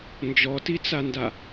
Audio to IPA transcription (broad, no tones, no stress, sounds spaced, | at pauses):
n d͡ʒ ɔ t i t͡s a n d a